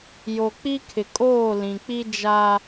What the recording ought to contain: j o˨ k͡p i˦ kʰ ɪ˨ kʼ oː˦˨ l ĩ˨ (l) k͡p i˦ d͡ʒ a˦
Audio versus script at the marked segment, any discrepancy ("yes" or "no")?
yes